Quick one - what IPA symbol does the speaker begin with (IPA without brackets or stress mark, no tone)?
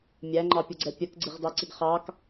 mʲ